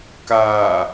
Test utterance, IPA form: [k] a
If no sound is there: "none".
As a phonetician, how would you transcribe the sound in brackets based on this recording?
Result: k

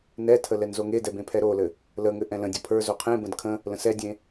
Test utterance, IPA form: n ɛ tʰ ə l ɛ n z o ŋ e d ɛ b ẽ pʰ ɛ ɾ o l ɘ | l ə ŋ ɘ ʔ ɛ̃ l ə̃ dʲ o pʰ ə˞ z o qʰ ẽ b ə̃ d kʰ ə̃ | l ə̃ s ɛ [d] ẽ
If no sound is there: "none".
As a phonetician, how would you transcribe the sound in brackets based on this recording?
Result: dʲ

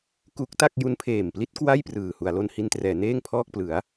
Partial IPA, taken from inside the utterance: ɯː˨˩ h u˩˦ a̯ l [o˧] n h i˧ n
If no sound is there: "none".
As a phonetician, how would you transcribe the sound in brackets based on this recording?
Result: o˧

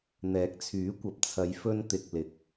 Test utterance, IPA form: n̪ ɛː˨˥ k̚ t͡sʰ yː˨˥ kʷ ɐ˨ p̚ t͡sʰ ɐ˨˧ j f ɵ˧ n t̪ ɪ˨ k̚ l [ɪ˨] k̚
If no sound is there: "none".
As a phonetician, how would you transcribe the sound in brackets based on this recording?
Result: ɪ˨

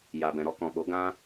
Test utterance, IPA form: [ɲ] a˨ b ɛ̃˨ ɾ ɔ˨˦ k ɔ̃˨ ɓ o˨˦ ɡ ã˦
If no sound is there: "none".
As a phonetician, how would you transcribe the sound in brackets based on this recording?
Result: j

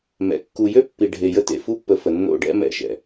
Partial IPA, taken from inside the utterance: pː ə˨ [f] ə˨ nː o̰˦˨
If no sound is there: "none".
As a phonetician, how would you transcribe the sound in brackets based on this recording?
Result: f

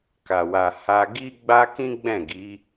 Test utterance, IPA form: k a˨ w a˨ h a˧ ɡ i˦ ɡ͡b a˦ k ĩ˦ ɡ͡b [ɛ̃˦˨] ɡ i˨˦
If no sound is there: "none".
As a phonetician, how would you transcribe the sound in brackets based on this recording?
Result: ɛ̃˦˨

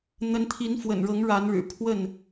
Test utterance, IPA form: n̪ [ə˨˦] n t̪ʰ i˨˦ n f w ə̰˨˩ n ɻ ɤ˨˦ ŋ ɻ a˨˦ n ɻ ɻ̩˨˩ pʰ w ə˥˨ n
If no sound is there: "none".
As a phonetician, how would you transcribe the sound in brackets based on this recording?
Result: ə˨˦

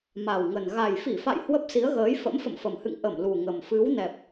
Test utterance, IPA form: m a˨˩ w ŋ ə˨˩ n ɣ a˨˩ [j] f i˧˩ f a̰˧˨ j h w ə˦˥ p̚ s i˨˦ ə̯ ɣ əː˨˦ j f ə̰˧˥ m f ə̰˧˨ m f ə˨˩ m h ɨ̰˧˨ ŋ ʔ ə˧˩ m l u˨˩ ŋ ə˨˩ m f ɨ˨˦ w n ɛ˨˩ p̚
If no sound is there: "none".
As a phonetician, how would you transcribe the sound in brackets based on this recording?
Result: j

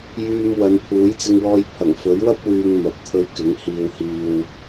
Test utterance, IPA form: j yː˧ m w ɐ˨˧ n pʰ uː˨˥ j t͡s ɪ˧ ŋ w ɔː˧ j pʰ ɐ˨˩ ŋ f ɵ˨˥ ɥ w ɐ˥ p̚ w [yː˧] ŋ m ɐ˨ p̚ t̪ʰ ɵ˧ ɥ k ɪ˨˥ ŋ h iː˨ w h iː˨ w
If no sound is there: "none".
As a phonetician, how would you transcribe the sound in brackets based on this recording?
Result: yː˧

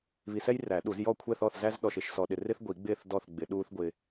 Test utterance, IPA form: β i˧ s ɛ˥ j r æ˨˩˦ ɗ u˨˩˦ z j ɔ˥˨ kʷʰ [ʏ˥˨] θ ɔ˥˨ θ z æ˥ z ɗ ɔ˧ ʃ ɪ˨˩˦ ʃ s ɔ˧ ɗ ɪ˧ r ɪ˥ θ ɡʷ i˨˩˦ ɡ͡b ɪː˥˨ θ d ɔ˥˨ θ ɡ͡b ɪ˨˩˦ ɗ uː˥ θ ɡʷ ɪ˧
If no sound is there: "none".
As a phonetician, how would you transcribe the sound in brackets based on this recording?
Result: ɛ˥˨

